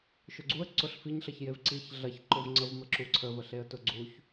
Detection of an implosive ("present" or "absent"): absent